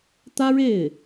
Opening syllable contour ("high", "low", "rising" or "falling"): high